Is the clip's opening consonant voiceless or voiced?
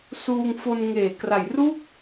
voiceless